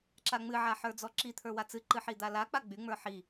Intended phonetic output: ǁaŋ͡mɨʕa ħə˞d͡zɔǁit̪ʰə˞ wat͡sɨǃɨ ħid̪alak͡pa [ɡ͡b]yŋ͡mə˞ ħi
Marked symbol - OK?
yes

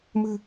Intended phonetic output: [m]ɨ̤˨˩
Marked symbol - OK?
yes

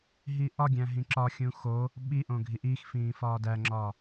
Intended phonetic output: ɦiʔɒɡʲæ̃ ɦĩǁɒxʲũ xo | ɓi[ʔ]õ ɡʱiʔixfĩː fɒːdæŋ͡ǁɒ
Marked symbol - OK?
yes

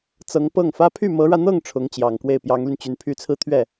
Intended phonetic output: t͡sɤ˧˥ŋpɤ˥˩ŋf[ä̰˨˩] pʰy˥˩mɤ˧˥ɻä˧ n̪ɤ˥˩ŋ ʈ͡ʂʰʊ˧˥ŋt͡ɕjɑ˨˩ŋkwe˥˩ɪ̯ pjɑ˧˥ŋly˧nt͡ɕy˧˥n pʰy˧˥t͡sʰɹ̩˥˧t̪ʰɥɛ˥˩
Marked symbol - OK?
no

